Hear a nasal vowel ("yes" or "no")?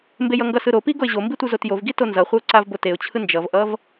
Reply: no